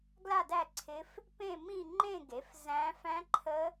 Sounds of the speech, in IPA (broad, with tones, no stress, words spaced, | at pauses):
ɡla˥˧dæ˥˧ǀʰɪ˦˥f | pẽ˥˧mĩ˥˧ŋ͡ǃẽ˥˧ɡe˩˥f zæ̃˦˥ fæ̃˦˥ǃʰə˦˥